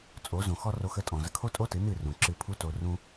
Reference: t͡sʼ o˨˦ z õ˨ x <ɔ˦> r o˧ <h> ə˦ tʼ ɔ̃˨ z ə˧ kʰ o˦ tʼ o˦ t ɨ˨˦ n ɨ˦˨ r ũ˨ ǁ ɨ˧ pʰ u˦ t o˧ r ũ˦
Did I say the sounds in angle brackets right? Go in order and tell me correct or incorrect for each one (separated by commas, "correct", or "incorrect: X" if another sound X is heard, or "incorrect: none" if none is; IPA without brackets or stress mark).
correct, incorrect: x